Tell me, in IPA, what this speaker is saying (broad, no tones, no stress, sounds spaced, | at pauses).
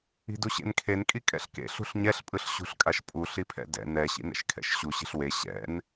i̤ d u ɕ ḛ n kʰ e n kʼ i kʼ ɛ̰ ɬ k ḛ ɬ ṳ ɬ ɲ ɛ ɬ pʼ ɯ ɬ ɕ ṳ ɬ kʼ a ʃ pʼ u ɬ i pʰ ɛ̰ d ɛ̰ n ɛ ɕ ḭ n ɛ̰ ʃ kʰ ɛ̰ ʃ ɕ u ɕ i̤ ɬ w e ɕ ɛ̰ n